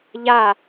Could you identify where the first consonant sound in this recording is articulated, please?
palatal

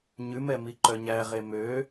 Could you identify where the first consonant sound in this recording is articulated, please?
palatal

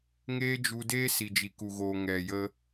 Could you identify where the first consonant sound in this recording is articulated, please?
velar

